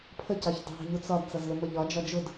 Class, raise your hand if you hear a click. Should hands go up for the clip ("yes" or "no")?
no